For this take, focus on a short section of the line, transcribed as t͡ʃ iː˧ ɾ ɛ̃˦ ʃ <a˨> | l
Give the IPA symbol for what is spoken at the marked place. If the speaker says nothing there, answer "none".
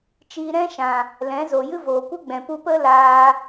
ã˨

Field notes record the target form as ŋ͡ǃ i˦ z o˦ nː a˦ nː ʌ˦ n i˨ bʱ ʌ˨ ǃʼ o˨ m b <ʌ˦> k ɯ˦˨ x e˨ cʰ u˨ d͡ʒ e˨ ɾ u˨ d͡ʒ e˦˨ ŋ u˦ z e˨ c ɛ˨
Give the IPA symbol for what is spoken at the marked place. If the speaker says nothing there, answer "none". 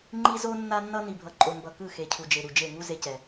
ʌ˨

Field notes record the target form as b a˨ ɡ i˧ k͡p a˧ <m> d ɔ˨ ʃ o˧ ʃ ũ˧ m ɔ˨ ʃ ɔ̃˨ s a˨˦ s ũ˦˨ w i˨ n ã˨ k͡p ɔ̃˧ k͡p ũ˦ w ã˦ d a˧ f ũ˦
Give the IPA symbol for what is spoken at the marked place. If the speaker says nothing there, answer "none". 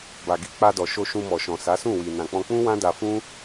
none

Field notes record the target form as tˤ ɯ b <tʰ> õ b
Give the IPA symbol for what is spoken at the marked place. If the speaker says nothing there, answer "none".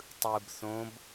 θ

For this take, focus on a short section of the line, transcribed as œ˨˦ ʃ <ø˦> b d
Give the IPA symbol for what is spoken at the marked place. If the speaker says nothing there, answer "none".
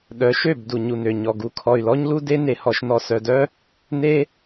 ø˦˨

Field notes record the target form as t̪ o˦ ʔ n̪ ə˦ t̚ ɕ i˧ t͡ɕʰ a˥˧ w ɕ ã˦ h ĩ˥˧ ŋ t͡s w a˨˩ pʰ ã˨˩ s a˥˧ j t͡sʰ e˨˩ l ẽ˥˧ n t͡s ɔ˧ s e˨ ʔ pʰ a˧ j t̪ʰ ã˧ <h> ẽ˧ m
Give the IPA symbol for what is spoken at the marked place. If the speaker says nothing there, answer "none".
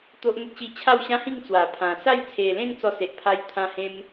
h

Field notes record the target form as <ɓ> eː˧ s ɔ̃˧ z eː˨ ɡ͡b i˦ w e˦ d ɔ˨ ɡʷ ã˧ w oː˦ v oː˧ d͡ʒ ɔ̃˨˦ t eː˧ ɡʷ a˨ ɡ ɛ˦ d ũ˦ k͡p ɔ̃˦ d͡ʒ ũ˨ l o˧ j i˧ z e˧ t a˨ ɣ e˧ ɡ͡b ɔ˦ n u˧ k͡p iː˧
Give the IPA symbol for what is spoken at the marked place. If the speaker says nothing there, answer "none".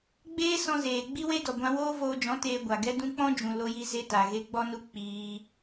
ɡ͡b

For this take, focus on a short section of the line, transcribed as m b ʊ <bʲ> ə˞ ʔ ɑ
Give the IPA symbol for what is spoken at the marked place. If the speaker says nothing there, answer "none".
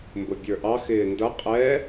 bʲ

